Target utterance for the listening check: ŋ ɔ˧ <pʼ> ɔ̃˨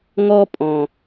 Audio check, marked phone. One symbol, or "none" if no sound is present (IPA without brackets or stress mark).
pʼ